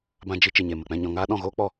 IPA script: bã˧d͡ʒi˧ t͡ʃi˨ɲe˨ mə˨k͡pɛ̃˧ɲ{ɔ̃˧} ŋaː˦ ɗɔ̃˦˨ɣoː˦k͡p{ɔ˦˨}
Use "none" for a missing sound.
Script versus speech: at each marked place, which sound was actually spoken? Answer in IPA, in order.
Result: ɔ̃˧, ɔ˦˨

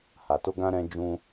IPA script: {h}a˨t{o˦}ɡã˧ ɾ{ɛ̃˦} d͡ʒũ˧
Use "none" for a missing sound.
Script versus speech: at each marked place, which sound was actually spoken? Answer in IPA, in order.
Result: h, o˧, ɛ̃˦

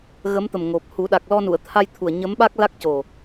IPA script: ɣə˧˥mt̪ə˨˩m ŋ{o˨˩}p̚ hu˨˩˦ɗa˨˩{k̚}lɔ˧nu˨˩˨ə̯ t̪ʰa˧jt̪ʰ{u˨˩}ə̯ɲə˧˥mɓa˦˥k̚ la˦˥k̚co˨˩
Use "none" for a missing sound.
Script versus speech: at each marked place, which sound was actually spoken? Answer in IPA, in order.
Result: o˨˩, k̚, u˨˩

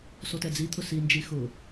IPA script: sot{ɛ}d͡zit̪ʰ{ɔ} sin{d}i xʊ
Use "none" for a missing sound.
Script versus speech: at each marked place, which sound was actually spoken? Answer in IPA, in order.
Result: ɛ, ʊ, d͡ʒ

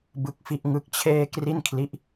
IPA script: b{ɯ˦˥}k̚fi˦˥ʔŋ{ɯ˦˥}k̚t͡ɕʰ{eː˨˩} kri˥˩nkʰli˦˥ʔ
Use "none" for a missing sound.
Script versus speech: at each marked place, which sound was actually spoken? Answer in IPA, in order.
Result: ɯ˦˥, ɯ˦˥, eː˥˩

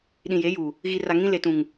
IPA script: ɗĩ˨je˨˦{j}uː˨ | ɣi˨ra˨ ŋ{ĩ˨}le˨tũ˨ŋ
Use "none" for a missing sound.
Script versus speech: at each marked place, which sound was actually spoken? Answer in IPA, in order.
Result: j, ĩ˦

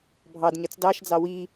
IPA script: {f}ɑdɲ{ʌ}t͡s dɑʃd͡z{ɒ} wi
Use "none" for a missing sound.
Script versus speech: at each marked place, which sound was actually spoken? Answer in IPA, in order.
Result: bʱ, ʌ, ɑ

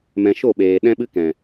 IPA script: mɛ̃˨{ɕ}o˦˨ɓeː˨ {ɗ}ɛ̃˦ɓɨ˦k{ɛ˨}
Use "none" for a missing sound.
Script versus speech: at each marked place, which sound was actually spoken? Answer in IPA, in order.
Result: ʃ, ɗ, ɛ̃˨

